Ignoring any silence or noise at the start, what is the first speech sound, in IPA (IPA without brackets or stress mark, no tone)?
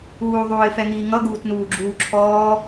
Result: uː